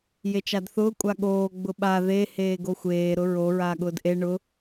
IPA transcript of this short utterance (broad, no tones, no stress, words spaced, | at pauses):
jet͡ʃadθʊː kʷʼaɠoː ɡ͡bʊɓa ðe heːɡoxʷeː ɾʊɹo ɹaːɠʊːdʔe ɳʊ